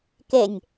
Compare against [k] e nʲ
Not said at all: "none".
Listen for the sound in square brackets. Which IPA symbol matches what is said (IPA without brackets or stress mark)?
k